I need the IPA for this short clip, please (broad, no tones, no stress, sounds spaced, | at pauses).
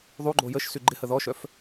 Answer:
ðˤ u ɡ͡ǃ o j ə ʃ s y ɡ͡ǃ ɪ h ə ð ɔ ʃ œ f